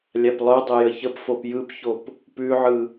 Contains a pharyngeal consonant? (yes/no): yes